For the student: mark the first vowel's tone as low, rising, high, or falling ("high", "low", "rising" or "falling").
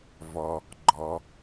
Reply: low